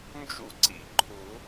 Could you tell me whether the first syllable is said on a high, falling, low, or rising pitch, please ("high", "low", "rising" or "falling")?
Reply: high